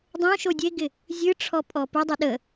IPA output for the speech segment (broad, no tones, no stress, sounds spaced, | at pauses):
dˤ õ ʃ o dʲ e ɡ ɪ | zʲ ɨ ʈ͡ʂʰ ɔ pʼ ɔ p ɯ dˤ ə ɗ ə